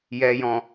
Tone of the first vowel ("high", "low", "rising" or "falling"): low